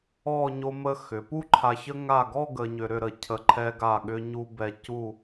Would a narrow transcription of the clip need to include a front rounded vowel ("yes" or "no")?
yes